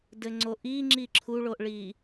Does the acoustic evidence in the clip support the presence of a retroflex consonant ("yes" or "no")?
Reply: yes